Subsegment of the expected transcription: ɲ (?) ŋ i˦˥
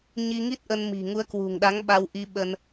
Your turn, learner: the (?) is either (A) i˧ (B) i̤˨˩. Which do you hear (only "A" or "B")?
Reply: A